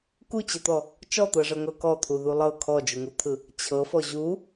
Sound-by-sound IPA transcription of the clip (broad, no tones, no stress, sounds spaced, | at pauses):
k u t͡ɕ ɤ t̪ ɔ | t͡ʃ ɔ t̪ ɤ ʐ ɤ ŋ ɤ k ɔ t̪ʰ u ð u lˠ ɤ kʰ ɔ d͡ʒ u ŋ u t̪ʰ ɯ | t͡ɕʰ ɤ f ɔ ʑ u